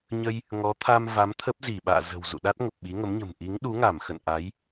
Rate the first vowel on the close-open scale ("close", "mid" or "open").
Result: mid